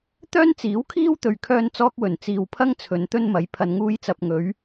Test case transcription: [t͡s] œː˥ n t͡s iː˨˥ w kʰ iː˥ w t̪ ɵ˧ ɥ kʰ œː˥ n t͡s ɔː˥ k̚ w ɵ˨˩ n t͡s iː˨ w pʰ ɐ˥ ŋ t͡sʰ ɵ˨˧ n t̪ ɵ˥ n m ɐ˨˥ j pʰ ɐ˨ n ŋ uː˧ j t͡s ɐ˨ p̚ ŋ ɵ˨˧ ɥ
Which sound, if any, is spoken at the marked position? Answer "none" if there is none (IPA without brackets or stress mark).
t̪